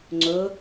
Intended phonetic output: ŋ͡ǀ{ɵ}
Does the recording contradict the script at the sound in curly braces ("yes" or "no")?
no